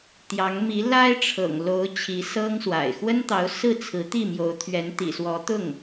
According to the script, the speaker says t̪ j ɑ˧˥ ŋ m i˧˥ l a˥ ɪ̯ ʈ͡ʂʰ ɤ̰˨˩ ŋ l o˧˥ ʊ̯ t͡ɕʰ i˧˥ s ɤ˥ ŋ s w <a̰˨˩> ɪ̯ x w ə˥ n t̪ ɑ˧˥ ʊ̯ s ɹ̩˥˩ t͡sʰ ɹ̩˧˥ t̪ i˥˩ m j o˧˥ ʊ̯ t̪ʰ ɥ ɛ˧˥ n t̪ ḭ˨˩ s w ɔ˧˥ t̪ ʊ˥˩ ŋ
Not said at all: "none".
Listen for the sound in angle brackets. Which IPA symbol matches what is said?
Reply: a̰˨˩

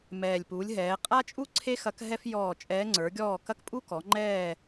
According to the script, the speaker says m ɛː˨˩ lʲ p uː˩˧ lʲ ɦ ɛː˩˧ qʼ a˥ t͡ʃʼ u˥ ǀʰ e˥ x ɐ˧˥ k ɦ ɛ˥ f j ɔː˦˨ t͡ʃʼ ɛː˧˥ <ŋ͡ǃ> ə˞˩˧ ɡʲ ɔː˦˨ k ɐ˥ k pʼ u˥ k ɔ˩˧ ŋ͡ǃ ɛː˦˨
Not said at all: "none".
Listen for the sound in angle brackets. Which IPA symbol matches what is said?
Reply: ŋ͡ǀ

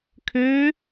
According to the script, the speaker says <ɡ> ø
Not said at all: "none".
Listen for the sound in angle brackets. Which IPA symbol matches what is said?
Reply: kʰ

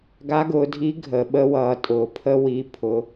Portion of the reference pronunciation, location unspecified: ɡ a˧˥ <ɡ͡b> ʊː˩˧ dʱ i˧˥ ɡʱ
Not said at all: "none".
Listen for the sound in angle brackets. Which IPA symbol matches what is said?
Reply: ɡ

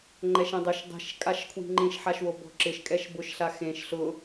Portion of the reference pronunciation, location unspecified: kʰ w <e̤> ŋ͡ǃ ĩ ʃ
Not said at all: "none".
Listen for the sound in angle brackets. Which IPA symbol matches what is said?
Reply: i̤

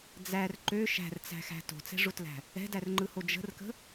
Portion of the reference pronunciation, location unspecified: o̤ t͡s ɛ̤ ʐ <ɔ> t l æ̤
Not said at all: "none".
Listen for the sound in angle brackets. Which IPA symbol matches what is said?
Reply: o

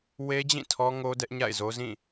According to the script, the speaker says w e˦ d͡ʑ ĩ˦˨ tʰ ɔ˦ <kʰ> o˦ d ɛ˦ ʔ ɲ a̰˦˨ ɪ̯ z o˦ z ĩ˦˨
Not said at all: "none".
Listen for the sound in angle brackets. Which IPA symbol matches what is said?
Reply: ŋ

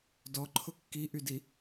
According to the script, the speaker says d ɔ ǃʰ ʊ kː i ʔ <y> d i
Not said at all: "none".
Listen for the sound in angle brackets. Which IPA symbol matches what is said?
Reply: y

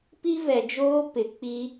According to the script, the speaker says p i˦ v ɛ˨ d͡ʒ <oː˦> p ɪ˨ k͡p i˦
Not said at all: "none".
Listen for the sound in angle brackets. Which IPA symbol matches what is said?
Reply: oː˦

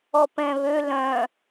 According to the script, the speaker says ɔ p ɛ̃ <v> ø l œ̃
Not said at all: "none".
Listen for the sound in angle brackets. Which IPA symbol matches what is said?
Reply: β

